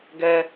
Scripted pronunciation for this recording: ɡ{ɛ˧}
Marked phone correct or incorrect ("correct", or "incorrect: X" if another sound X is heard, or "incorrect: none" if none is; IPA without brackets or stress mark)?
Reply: correct